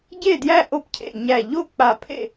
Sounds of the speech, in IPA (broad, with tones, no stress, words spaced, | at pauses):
ɟe˥˩djæ˥˩ ʔo˥˩pcʰḛ˧˩ ɲæ˧˩ʎo˥˩ k͡pa˧˩pʰḛ˥˩